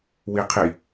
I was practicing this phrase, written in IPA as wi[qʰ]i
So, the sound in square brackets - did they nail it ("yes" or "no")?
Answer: yes